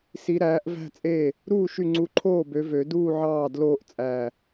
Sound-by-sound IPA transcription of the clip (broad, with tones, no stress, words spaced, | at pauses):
si˨˦ɾæː˨˦ʔvæ̤˥˧t͡sʼe˥˩ | ɾuː˥˩ʃy˧˩ŋ͡ǀu˨˦ǃʰoː˥˩ bø˨˦vø˨˩˦duː˥˧ʕɑː˥˩ dloː˥˧ʔt͡sʼæ˧˩